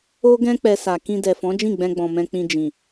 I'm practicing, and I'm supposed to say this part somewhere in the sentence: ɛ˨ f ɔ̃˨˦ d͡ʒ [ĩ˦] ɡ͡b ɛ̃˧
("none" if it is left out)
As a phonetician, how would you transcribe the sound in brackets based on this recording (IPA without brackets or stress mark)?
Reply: ĩ˦˨